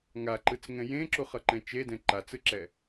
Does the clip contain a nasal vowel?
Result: yes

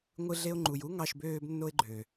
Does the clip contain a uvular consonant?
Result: no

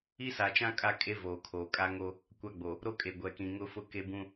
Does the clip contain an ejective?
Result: yes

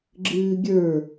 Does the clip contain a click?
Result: yes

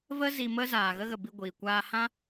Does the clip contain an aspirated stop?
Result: no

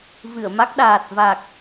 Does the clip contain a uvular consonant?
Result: no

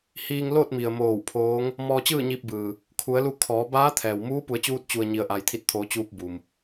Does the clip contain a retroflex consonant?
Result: no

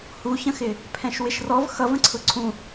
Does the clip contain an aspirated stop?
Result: yes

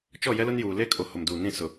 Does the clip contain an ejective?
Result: yes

